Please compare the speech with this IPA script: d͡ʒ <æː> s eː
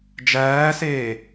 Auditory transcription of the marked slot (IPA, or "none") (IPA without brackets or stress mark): æː